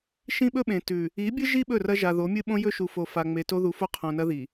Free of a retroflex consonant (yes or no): yes